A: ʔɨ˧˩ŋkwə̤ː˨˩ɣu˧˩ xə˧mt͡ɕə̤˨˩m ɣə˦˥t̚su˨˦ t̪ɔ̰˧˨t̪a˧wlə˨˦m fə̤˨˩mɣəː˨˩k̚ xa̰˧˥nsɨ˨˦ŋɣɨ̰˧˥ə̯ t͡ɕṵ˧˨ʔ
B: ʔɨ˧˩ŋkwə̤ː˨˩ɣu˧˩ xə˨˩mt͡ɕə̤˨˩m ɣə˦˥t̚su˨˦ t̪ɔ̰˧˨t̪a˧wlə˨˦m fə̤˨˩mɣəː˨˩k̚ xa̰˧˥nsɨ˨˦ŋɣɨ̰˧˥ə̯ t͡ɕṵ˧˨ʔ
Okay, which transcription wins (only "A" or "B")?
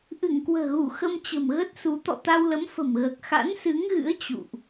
A